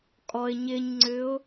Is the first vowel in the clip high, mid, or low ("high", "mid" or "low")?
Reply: mid